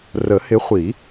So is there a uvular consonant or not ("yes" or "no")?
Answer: yes